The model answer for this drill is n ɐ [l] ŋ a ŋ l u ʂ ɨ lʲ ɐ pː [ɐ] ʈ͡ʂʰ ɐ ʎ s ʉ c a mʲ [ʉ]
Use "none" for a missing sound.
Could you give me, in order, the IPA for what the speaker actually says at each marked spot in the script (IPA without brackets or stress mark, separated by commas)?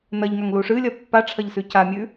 ʎ, a, ʉ